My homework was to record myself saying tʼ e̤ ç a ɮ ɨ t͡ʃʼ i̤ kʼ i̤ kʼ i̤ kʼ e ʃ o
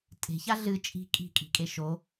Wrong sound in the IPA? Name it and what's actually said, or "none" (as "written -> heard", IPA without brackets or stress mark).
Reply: none